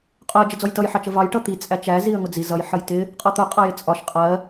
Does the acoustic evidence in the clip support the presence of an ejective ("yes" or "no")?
yes